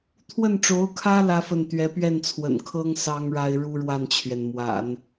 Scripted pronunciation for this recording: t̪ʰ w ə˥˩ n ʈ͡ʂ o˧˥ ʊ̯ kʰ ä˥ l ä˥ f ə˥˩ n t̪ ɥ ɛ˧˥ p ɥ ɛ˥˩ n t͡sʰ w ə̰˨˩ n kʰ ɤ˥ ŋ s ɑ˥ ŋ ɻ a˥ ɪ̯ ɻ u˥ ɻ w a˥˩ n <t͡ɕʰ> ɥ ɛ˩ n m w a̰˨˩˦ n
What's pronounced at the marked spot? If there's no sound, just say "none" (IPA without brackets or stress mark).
t͡ɕʰ